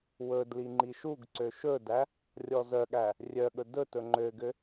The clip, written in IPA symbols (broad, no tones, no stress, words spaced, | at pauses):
wɵdli ŋ͡ǃiʃuɡǀø ʃɵdæ | rʲɔzœɠæ | rʲœɠɵ dɵtɵ ŋ͡ǃøɡø